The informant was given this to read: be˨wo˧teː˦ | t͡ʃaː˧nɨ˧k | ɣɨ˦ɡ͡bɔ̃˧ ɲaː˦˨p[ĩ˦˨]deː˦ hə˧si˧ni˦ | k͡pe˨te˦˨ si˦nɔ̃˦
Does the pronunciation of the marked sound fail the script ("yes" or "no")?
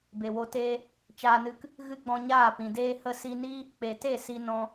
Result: yes